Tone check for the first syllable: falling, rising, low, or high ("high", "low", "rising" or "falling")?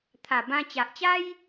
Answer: low